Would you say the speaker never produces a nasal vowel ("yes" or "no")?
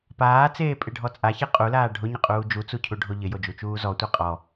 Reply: yes